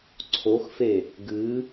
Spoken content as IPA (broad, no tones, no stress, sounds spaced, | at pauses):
ǀʰ o x f e | ɡ ɨ